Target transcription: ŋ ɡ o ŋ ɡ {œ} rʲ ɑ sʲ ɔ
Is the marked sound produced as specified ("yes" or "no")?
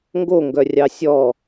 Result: yes